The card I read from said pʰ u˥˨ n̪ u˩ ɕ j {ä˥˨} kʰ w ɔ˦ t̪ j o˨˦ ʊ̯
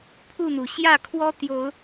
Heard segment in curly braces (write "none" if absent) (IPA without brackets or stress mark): ä˥˨